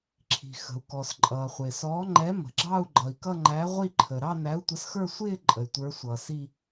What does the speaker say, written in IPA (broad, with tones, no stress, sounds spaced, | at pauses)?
ǁʰ i̤˩ x ə̤˩ u̯ k ɔ˩ s ǃʼ ʌː˩ χʷ ɪː˩ s ɔː˨˥ ŋ͡ǃ ɛ˨˥ m ə̤˩ ɡ͡ǁ ɑ˥˧ u̯ ɡ͡ǃ ʌ˩ i̯ k ʌ˥˧ ŋ͡ǃ æ˨˥ ʁʷ i˥˧ ǃʰ ə˩ ɾ ɑ˥˧ n æ˨˥ u̯ tʷ ə˨˥ s x ə˞˥˧ sʷ ɪː˥˧ ǃʼ ə˩ y̯ tʷ ə˞˨˥ sʷ ʌː˩ s i˥˧